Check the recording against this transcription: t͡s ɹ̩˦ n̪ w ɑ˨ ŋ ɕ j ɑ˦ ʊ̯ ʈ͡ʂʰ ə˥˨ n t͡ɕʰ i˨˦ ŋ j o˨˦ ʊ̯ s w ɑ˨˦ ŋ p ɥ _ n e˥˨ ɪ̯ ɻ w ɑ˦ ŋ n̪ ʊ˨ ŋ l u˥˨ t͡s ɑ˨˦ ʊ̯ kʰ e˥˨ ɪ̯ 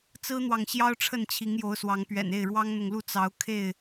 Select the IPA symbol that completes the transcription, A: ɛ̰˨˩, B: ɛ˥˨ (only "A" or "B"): A